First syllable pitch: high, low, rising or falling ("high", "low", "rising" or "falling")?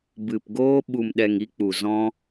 low